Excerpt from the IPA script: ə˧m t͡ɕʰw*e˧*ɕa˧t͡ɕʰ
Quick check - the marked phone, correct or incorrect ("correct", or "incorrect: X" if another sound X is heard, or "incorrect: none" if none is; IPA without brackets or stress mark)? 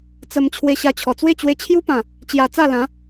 correct